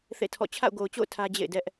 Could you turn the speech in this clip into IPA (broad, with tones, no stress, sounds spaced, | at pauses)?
θ ḛ˦˨ tʰ ɔ̰˦˨ t͡ɕʰ a̰˦˨ ʊ̯ ɡ o˨ ʊ̯ t͡ɕ o̰˦˨ ʊ̯ tʰ ä˦ d͡ʑ ḛ˦˨ ɪ̯ d ɛ˦ ʔ